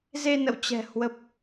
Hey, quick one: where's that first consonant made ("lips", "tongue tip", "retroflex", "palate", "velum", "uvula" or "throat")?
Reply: tongue tip